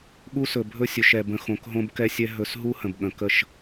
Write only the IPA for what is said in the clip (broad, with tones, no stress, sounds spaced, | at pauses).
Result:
ɠ u˦ s ɵ˨ bʱ ɵ˦ sʲ ɵ˨ ʃ ɛ˨ b ə̃˨ x õ˨ k ɦ õ˧ b k ɛ˦ sʲ ɛ˦ ɦ ɵ˧ s ɦ u˦ h ə̃˨ b ɠ ə̃˨ k ə˦˨ ʃ